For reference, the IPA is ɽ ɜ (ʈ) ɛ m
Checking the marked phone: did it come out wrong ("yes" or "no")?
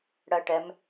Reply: no